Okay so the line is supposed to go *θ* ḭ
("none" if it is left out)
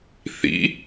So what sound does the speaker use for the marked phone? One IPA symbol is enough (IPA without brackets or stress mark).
θ